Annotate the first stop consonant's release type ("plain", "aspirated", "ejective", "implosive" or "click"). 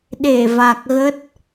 implosive